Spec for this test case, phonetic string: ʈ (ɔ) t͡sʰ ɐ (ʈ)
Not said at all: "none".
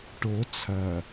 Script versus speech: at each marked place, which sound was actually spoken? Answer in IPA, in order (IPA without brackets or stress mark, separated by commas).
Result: o, none